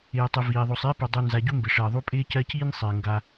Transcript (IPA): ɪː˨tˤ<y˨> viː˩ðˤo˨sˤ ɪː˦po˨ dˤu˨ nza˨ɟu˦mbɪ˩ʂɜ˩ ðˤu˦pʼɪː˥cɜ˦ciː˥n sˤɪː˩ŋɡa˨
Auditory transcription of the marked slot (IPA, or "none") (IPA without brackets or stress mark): ɪ˨